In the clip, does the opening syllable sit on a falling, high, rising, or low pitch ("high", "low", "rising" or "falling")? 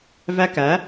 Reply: high